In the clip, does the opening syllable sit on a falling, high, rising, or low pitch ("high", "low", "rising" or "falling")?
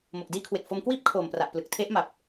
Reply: low